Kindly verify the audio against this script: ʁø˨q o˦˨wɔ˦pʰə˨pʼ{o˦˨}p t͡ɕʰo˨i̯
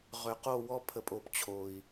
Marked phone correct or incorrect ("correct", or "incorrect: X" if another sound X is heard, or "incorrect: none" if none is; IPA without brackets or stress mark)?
incorrect: o˨